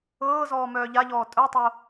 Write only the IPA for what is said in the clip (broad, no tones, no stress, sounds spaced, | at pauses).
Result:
ɤː z ɔː m œː ʎ a ʎ ɔː tʼ œ tˤ o